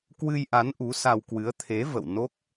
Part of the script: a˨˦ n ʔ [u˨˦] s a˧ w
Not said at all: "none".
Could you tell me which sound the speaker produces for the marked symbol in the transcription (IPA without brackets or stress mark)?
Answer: u˨˦